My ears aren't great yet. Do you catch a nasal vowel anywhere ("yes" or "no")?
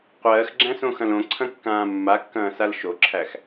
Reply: yes